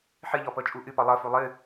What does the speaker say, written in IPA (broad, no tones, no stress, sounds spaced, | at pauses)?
ħ ɨ ʎ ɔ p ɤ t͡ʃʼ u ʔ ɨ p ɔ lˠ ɤ f u lˠ ɨ